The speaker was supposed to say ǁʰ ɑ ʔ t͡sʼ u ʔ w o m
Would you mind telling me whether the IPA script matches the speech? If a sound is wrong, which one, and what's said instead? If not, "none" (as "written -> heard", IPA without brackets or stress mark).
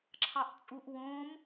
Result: o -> õ